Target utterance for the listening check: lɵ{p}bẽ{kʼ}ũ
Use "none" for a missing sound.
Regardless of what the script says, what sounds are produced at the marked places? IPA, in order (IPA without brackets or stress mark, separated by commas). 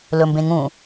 m, ŋ